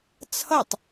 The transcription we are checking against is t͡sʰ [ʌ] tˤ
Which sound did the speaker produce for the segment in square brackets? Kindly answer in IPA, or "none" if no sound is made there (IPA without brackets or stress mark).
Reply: ʌ